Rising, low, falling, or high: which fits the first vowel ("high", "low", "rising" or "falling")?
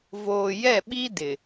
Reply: low